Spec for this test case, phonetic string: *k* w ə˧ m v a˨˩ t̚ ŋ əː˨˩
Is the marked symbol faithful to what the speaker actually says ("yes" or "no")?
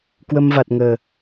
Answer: yes